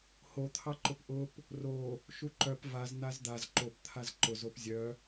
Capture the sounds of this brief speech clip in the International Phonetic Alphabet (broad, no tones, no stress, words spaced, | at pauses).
hot̪ʰɑǃʊp ʔʊp | ro | ʃuǃœp vaz n̪azd̪az ǃopt̪ʰaz ǃʊzop zʲœ